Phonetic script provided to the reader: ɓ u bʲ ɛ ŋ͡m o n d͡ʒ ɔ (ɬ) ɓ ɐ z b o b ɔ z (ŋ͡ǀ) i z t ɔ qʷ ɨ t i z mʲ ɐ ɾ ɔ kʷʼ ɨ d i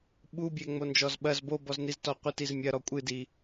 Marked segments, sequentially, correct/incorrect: incorrect: z, incorrect: n

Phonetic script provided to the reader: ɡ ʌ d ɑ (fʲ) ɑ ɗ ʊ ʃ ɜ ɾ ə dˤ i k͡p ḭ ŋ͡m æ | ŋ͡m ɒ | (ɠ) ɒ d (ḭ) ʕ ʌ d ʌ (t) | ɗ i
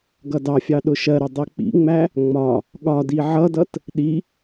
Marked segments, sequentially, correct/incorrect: correct, correct, incorrect: i, correct

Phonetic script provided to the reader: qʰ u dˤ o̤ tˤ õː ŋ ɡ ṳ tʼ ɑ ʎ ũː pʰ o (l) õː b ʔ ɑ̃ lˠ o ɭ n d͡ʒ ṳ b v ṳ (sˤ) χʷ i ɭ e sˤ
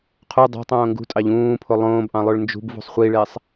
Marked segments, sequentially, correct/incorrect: incorrect: lˠ, correct

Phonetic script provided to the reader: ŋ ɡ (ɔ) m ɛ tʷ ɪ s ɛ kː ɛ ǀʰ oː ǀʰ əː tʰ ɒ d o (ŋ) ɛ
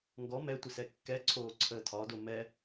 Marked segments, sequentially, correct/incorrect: correct, incorrect: m

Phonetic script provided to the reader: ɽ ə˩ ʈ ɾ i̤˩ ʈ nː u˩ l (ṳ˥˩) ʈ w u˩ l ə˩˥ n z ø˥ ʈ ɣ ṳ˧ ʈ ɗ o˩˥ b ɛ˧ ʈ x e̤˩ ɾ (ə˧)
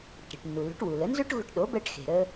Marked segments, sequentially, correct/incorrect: incorrect: ṳ˩˥, correct

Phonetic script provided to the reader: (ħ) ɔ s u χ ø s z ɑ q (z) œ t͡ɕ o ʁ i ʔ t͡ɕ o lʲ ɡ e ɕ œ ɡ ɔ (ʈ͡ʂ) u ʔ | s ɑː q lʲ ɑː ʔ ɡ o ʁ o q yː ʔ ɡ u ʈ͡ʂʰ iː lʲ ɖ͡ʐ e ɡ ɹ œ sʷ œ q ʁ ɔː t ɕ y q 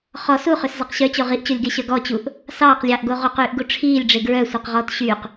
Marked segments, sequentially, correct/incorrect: incorrect: χ, incorrect: ɕ, incorrect: t͡ɕ

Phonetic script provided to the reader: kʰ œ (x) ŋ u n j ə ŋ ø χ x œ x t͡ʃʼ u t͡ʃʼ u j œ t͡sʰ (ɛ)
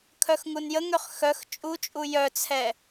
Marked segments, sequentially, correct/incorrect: correct, correct

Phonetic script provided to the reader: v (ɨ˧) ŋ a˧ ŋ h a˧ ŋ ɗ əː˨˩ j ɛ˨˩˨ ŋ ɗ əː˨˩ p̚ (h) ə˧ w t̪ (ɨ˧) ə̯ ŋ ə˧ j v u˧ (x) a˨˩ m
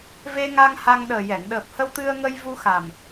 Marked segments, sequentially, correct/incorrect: incorrect: e˧, correct, correct, correct

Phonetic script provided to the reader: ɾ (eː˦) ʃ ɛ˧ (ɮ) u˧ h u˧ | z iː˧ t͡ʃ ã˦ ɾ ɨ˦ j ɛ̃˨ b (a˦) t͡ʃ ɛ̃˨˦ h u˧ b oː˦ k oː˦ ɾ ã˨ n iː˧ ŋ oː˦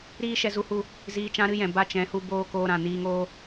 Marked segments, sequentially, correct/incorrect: incorrect: iː˦, incorrect: z, correct

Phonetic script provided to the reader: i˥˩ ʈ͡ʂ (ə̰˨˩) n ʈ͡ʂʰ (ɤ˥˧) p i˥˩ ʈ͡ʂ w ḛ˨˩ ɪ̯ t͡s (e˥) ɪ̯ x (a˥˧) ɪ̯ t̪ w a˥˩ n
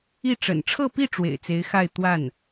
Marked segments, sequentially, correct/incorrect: correct, correct, incorrect: e˧˥, correct

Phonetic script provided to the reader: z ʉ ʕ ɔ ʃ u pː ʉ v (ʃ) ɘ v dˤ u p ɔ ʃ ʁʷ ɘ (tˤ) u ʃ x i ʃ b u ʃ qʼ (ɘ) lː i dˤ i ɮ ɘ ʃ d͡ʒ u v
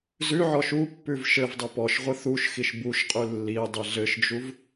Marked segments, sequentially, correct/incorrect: correct, incorrect: θ, incorrect: ʉ

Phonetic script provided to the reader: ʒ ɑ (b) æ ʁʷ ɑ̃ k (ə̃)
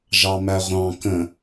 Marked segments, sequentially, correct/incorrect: incorrect: m, correct

